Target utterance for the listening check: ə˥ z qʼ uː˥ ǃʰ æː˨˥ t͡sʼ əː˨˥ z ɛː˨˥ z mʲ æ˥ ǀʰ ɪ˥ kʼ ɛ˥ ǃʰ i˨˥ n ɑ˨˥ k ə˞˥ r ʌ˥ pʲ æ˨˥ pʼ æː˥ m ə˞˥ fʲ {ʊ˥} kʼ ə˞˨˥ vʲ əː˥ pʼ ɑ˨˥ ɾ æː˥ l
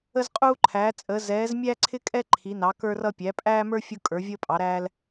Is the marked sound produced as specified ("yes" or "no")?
yes